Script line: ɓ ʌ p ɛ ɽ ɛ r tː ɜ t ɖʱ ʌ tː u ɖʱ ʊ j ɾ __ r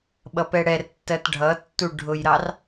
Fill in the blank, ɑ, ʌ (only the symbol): ɑ